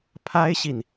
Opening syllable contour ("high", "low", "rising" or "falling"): high